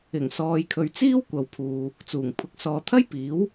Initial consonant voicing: voiced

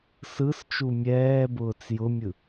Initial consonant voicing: voiceless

